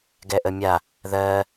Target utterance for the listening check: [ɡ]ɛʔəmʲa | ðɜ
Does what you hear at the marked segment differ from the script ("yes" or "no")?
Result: no